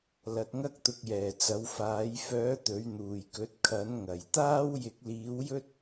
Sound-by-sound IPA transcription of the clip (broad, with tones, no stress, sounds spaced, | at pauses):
l ɐ˨˥ t̚ ŋ ɐ˥ k̚ t̪ ʊ˧ k̚ j ɛː˨˩ t͡s ɐ˨˥ w f aː˨˥ j f œː˨˥ t̪ ɵ˨˥ ɥ n̪ uː˨˩ j k ɵ˨˥ t̚ kʰ ɐ˨˥ n ŋ ɐ˨˩ j t̪ aː˥ w j ɪ˨˥ k̚ l iː˨˥ w j ɵ˥ t̚